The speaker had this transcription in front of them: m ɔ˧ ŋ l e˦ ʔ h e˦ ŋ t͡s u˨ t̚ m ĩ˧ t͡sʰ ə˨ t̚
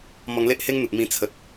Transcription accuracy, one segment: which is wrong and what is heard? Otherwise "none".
t͡s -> n̪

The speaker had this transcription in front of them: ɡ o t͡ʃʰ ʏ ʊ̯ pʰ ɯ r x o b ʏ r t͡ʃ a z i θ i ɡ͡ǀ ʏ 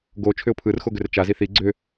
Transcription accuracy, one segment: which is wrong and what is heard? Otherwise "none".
b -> ɡ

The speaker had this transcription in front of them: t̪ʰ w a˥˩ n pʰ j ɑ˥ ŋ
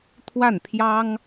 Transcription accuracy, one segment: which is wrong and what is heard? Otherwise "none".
none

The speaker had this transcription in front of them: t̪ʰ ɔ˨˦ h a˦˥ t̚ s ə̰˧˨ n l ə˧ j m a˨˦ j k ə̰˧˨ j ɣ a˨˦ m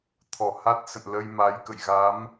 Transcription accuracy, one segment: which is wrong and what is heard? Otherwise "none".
ɔ˨˦ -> ɔ˧˩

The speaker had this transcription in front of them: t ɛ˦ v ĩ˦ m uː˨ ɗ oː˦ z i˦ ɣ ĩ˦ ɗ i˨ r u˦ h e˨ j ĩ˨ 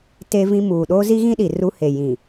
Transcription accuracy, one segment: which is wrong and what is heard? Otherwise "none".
ɛ˦ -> e˦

